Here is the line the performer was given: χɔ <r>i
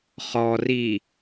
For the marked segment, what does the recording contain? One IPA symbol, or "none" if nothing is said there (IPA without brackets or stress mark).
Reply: r